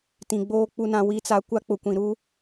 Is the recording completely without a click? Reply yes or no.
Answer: yes